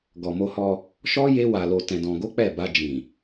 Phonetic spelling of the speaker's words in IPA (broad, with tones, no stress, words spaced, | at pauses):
ɡɔ˨mo˧hɔ˧ | ʃɔ˦ je˦wa˧lo˧ tɛ̃˧dɔ̃˧ɡo˦k͡pɛ˦˨ ba˧d͡ʒĩ˨